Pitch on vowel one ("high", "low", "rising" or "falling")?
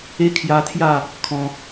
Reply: high